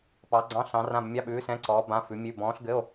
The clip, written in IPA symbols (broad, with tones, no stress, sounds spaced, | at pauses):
p ɑ˨˥ ɡ͡ǀ ɑ̃˧˥˧ ɬ ɑ̃˨˥ r ã˧˥˧ b mʲ ɑ˧˥˧ ɓ ʉː˨˥ s ɛ̃˧˥˧ ǀ ɔː˨˥ b ã˧˥˧ f ʉ˨˥ mʲ ʉ˧˥˧ b ɔ̃ː˨˥ ɬ ɡ ɘ˧˥˧ o̯